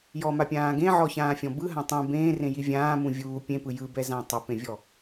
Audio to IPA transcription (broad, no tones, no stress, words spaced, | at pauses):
jɔmapʲãː ɡẽʕɔçãːfʲɔ̃ bɯɦã tˤũ bẽːrẽji vʲãːmũ vʲuː pʲẽpɯ jɯbɛzã tˤɛpẽvʲɔ